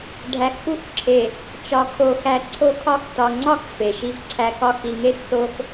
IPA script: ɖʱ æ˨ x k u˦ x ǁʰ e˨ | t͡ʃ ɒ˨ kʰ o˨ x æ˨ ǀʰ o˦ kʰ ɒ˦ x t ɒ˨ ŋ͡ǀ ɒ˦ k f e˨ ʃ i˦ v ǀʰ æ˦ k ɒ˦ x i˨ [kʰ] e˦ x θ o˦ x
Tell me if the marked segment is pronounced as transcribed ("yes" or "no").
no